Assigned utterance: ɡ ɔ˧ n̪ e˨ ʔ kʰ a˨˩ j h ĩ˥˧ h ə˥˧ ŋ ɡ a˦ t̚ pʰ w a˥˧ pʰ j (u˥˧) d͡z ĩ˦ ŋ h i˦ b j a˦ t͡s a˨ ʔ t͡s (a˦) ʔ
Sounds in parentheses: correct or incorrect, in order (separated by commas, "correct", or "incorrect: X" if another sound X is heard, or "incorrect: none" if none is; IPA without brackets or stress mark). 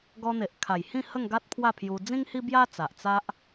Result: incorrect: u˧, correct